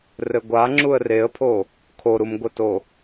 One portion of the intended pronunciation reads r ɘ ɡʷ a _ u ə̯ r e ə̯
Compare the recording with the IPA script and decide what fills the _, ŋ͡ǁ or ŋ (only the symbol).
ŋ͡ǁ